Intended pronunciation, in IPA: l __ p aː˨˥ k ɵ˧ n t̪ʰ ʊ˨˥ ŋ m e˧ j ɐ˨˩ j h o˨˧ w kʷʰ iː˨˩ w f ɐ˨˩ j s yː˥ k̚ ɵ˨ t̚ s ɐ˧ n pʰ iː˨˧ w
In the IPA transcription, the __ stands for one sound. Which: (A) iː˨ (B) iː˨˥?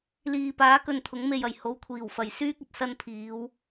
A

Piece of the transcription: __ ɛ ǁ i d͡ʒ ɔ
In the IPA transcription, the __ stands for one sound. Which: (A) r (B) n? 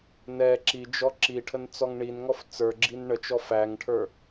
B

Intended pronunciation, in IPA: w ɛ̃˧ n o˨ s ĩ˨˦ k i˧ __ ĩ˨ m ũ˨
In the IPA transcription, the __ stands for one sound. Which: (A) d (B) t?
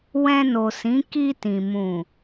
B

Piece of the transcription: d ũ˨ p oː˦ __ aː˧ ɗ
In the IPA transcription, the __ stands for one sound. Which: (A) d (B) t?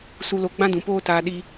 B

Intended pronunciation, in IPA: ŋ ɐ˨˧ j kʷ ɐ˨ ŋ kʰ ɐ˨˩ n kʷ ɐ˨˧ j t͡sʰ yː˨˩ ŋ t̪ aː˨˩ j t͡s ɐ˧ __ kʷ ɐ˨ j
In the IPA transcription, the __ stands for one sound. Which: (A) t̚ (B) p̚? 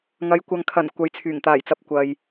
B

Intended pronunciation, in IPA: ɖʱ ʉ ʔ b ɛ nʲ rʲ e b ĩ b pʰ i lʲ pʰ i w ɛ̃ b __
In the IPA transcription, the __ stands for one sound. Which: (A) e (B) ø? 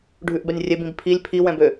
B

